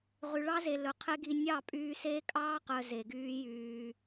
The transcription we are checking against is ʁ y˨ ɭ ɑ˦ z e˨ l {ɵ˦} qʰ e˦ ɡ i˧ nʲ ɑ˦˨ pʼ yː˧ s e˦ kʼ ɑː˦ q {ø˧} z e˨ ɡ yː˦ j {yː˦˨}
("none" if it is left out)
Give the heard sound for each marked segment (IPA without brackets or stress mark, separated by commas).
ɵ˨, œ˧, yː˧